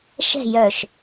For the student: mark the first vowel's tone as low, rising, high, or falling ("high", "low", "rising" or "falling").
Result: falling